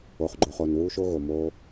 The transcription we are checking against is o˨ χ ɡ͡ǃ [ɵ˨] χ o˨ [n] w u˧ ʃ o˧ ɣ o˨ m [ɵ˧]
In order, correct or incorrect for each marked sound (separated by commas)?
incorrect, correct, incorrect